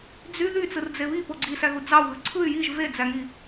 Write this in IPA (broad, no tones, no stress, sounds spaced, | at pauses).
d͡z y ð y t͡s ɯ r d͡z e β i p o ɡ͡ǀ i s æ ɣ u d͡z ɑ u̯ ɣ ɯ ǀʰ ɯ y̯ j i ʒ v e d͡z æ ŋ i